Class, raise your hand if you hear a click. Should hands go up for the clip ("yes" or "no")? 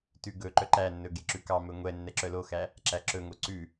yes